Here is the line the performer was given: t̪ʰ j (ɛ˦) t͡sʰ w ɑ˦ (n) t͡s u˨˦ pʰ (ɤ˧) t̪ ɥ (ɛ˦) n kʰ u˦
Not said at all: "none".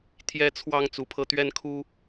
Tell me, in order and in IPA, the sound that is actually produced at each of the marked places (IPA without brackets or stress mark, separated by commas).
ɛ˦, ŋ, ɤ˧, ɛ˦